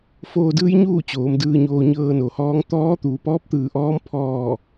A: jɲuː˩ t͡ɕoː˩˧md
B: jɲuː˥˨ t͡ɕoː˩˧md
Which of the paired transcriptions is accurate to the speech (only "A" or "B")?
B